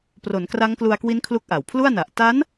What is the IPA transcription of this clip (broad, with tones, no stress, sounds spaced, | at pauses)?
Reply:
p r o˩˦ n k r a˦˥ ŋ k l u˧ a̯ k w i˦˥ n kʰ l u˥˩ k̚ ʔ a˨˩ w pʰ l u˥˩ a̯ n a˨˩ ʔ t a˦˥ n